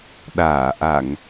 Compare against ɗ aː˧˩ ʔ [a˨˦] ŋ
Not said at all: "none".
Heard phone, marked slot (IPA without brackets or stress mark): a˧˩˨